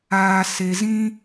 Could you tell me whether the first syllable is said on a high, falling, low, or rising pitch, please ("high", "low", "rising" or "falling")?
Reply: low